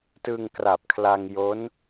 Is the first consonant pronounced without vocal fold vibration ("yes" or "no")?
yes